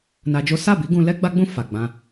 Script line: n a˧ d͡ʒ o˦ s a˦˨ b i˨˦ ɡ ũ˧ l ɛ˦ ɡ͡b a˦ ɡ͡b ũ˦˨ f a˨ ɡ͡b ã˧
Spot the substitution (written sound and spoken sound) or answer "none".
none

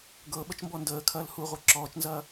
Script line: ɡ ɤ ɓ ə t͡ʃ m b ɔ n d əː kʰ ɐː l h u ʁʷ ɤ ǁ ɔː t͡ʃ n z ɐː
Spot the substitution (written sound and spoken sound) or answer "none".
none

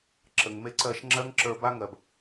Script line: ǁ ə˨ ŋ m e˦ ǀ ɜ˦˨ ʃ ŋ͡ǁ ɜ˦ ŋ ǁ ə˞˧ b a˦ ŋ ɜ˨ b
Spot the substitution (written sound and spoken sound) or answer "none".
none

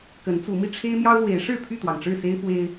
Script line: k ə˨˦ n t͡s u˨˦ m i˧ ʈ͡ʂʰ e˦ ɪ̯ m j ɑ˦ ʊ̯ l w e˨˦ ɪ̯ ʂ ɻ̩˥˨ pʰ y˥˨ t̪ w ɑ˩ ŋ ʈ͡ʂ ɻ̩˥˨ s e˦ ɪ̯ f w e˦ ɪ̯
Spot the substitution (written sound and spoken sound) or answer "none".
none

